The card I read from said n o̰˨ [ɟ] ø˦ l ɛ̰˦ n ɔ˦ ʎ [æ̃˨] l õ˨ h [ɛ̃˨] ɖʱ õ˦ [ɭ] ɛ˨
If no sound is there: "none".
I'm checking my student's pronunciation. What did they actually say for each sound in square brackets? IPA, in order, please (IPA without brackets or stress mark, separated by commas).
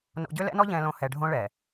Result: ɟ, ɛ̃˨, ɛ˨, ɭ